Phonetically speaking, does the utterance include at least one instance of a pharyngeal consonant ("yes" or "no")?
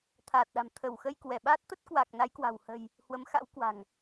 no